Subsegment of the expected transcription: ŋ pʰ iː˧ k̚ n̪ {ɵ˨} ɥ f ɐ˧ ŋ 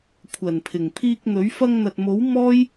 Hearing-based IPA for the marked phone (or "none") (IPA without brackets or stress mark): ɵ˨˥